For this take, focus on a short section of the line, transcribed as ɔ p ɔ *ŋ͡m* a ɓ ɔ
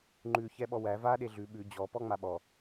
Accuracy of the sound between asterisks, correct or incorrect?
correct